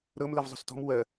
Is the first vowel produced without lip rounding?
yes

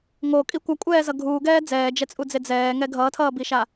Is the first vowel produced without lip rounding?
no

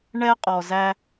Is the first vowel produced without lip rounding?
yes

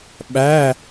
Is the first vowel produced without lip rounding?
yes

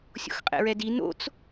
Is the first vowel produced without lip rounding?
no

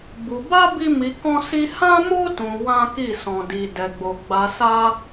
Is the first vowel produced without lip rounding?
no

